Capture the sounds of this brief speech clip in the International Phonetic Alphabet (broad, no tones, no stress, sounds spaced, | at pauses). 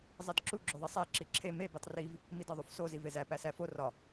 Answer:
zˤ i d ǁ u ɡ͡ǁ o ðˤ i sˤ æ ǁ i ǁʰ e m e b e tˤ r i v | m i d ɒ ðˤ u f s o z i v e z æ p æ s æ f o r ɒ